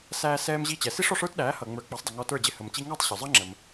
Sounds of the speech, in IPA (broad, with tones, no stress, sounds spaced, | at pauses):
s æː˧ s ɛː˧ m ʑ i˧ t͡ɕ ɛ˩ s i˥ ʂ ɔ˩ ʂ ə˞˥ t ɗ æː˩˥ h ʌː˩ ŋ͡m ə˞˩˥ k͡p ɑ˩˥ sˤ dˤ ə˩ ŋ ɔ˧ t ə˞˥˩ d͡ʑ ɪ˥˩ h ə˩ m t͡ɕ i˧ ŋ ɑ˥˩ tˤ ɕ ʊ˩ zˤ ʌ˥ ŋ͡ǁ ə˩ m